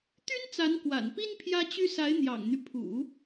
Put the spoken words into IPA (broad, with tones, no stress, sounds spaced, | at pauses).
t̪ y˥ n t͡s a˧˥ n k w a̰˨˩ n p i˥ n pʰ j ä˥ t͡ɕ y˥ s a˧˥ ɪ̯ n̪ j ɑ̰˨˩ ŋ n̪ y˦ pʰ ṵ˨˩˦